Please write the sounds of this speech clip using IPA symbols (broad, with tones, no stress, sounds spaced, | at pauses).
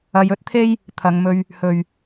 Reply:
ɐ˨˧ j ɵ˥ t̚ t̪ʰ e˥ j | t̪ʰ ɐ˨˧ ŋ m ɵ˧ ɥ | h ɵ˨ ɥ